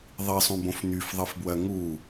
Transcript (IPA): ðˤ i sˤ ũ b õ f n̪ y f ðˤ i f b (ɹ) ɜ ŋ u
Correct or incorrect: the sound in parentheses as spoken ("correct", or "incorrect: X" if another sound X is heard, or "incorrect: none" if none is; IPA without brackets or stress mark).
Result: incorrect: w